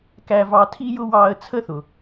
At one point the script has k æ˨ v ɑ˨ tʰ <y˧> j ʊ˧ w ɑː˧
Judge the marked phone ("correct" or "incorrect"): incorrect